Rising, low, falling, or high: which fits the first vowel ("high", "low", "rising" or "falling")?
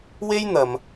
high